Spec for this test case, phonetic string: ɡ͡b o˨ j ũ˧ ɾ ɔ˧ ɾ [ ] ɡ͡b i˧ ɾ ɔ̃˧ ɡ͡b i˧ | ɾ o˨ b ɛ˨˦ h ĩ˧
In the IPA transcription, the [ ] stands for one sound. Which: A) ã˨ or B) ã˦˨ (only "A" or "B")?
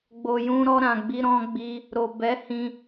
A